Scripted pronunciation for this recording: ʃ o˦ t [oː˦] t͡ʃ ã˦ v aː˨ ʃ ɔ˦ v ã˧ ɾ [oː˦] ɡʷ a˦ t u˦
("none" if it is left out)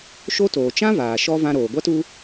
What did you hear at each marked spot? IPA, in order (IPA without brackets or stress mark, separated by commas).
oː˨, oː˨